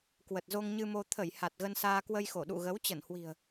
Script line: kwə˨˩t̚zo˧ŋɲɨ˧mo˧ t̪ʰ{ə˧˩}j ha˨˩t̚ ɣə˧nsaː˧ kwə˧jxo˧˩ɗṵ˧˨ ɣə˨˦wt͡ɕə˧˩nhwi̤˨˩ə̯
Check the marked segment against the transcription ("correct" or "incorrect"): correct